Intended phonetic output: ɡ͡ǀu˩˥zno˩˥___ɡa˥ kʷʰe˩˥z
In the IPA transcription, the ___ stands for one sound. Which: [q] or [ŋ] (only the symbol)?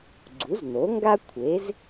ŋ